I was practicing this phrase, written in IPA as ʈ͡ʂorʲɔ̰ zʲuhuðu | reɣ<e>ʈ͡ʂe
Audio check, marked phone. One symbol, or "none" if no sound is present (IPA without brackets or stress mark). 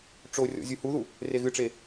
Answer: ɨ